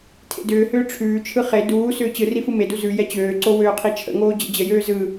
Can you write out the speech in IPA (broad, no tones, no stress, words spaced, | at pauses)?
tʰḛdʏːhʏː ʈ͡ʂʰʉːt͡ʃʰɯ χe duː sʏːt͡ɕɯri fɯmedu zʉ jɛt͡ɕøːǀo wøːqʰit͡ʃʰə̰ŋoː d͡ʑə̰d͡ʑəjøː zɯ